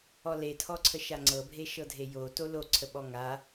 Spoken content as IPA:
ɔ l e tʰ ɔ ǀʰ ə ʃ a ŋ͡ǀ ɤ bʱ e ʃ ɤ dʱ e j o t o l o ǀʰ ə ɓ ɔ ŋ a

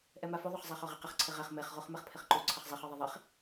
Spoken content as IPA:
ʔ ɛ m a f o ðˤ o χ zˤ ɛ χ ɔ ʁ i q ɪ χ ǀʰ ɪ ʁ ɛ χ m e χ ʁ u χ m ɛ χ pʰ ɪ χ ǃ u ǀʰ ɪ χ zˤ e χ ɔ ðˤ i ðˤ e χ

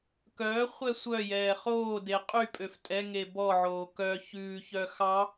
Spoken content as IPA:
k œː χʷ ɛ sʷ œ j ɛː χ oː d e qʼ y pʼ ø f tʼ ɛ ŋ e b ɔ ʕ oː k œ ç ʉː ç œ x ɑ

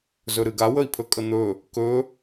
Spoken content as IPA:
z ɵ ɾ ɨ ɡ a w ə i̯ pʰ ɵ kʼ ə n̪ ɵ | k ɵ

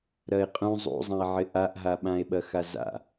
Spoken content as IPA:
ɾ ɐ e̯ qʼ ũ zˤ ṵ zˤ ɐ̃ e̯ ʕ ɪ ʔ a ʔ ɦ a ɓ ã e̯ ɓ ɐ x a z a̰

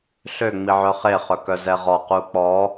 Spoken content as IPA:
ɬ ø ŋ͡m i ʕ œ χ e χ œ k œ z ɛ ʁ ɔ q u k͡p ɔ

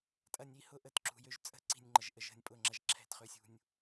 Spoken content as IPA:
tʼ ɐ˨ nʲ i˦˨ h ʊ˦ ʔ ə˨ t ǁ ṳ˨ j ø˦ ʒ t͡sʼ ə̤˦ ǀ i̤˨ nʲ ŋ͡ǃ ə˨ ʒ ʔ ə˨ ʒ ə̤˨ nʲ pʼ ʊ˨ ŋ͡ǁ ɐ˨ ʒ ǁʰ ɛ̤˦˨ t χ ø˦ sʲ ṳ˦ nʲ

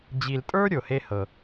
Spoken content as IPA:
d͡ʑ i˨ l tʼ ə˞˦ ɾʲ o˨ h e˦ h ɤ˨

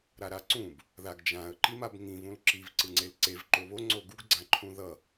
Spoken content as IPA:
ɾ a ɾ a ǀ ũ b | ð a ɡ d͡ʒ ã ə̯ ǃ i m a b ŋ ĩ v ũ l ǁ i v ǀ ɯ ŋ͡ǀ e l ǀ e v ǃ o β o ŋ͡ǀ o ɡ u ɡ ɡ͡ǀ ã ǃʰ ũ ð ʌ

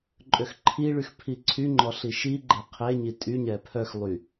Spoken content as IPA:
ǃʼ ø x ǃʰ i ɭ y x pʰ i ǀʰ y ŋ͡ǃ ɔ ɬ i ʃ i ɡ͡ǃ ɛ qʰ e ɲ i tʼ y ɲ ɛ pʰ œ x lˠ y

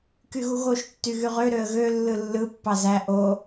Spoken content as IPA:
k y ɣ u ɣ o ʃ tː y ɣ y ʁ ø ɾ ø ə̯ ɣ ø lː ɯ lː ɯ pː ɑ z æ ʔ o

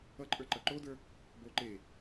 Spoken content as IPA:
ʌ ǃʼ ə˞ ǃ ʌ ǃ o d ə˞ | b o ǃ e

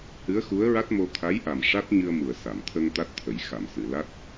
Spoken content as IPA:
h ɨ˧˥ ə̯ x u˧˥ ə̯ ɹ a˦˥ t̚ m o˧ t̪ʰ a˧˥ j ʔ a˨˩ m ʂ a˦˥ t̚ ɲ ɨ˧ ə̯ m u˨˩ ə̯ s a˨˩˨ m t̪ʰ ə˧ ŋ t̪ a˦˥ t̚ t̪ʰ ə˨˩˦ j x a˨˩˨ m s ɨ˨˩˨ l a˦˥ t̚

